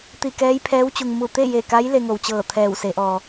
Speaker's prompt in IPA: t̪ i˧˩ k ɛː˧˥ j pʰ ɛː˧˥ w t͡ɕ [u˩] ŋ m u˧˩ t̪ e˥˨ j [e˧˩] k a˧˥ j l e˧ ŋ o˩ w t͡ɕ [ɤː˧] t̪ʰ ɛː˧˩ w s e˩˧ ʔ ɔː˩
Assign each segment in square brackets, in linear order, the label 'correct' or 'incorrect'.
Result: correct, correct, incorrect

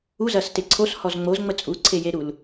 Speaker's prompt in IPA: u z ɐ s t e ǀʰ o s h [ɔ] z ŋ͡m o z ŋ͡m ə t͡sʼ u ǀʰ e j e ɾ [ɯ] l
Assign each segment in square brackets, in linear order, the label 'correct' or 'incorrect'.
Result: correct, incorrect

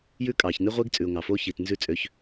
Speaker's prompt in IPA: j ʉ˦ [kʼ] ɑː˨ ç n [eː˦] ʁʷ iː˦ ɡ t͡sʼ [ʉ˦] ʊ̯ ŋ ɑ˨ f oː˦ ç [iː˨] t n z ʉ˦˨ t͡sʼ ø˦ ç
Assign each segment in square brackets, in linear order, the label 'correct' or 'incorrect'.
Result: correct, incorrect, incorrect, correct

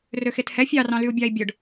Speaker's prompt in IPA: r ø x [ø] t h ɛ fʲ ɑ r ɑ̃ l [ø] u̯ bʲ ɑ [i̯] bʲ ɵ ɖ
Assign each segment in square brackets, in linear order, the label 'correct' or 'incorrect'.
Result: incorrect, incorrect, correct

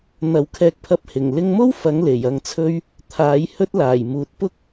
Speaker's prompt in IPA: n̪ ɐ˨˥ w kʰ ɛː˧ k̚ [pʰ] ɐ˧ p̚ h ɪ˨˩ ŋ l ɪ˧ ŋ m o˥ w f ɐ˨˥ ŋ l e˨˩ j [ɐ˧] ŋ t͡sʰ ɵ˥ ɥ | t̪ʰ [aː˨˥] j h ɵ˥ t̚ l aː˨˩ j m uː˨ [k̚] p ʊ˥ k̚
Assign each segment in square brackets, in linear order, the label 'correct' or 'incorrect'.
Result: correct, correct, correct, incorrect

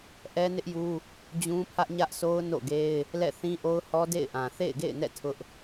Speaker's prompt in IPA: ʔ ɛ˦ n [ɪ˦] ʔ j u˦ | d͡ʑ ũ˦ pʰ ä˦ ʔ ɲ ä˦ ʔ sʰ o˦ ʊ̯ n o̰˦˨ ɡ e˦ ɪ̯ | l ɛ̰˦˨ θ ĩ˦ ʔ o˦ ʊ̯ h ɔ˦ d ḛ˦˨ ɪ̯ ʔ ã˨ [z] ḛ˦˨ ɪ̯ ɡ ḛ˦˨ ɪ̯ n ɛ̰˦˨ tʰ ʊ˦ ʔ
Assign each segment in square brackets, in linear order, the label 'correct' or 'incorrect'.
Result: correct, incorrect

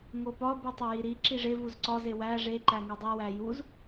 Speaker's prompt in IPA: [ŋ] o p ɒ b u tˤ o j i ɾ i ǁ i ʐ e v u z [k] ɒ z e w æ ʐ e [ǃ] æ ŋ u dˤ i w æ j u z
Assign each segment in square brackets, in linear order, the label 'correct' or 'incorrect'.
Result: correct, incorrect, correct

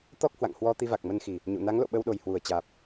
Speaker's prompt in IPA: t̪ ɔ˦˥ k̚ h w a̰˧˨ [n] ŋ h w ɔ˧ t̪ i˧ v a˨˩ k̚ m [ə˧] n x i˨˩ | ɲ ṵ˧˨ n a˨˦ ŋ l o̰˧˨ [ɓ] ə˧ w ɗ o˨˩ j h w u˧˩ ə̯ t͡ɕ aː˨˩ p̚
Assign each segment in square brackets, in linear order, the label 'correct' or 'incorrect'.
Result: incorrect, correct, correct

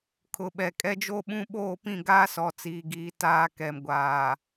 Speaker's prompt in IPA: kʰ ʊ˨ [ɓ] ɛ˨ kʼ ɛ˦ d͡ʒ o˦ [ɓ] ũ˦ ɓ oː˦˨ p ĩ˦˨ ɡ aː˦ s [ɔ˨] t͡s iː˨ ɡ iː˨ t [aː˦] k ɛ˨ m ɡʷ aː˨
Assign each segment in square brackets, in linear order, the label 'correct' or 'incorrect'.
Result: correct, correct, correct, correct

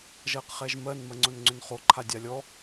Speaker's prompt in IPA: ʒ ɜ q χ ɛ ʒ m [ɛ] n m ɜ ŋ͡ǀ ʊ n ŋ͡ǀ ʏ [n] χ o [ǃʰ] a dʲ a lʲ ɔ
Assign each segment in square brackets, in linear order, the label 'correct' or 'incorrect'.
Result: incorrect, correct, correct

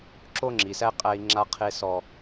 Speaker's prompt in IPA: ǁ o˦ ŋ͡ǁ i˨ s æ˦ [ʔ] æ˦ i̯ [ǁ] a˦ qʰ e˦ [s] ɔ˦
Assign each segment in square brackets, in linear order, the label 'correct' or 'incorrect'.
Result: incorrect, incorrect, correct

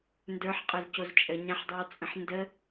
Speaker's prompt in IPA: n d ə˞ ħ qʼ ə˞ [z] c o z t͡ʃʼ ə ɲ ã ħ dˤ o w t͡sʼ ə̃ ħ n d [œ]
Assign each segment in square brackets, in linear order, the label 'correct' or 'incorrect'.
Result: correct, incorrect

